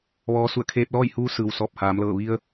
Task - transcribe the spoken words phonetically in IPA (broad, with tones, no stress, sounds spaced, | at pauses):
ʋ ɔː˧˥ s u˧˩ ə̯ kʰ eː˧ p̚ l ɔː˥˨ j h uː˧˥ s ɯː˩ w s ɔː˧˩ p̚ h aː˩˧ m l ɤː˧˩ ʋ i˧ ə̯